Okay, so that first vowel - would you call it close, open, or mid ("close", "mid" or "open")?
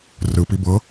close